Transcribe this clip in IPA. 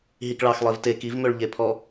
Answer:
ɦ i k ɭ ɑ x lˠ e v t e k i v m ø ɭ ʎ e pʰ ɔ

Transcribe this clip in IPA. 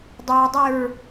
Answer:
dˤ ʏ ɹ dˤ ʏ ɹ

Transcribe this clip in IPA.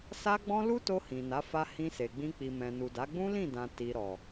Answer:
s a˦ ɡ͡b ɔ̃˦ l u˦ t o˧ h ĩ˨ n a˨˦ f a˧ h ĩ˧ s e˨ ɡ͡b ĩ˧ k͡p i˨ m ɛ̃˨ n u˨ d a˨˦ ɡ͡b ũ˦ l ĩ˦˨ d ã˨ t i˨ ɾ ɔ˨

